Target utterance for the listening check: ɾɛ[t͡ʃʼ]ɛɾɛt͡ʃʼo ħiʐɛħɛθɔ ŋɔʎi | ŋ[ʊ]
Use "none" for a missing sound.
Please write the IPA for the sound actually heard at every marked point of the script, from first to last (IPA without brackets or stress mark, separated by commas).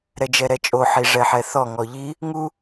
d͡ʒ, u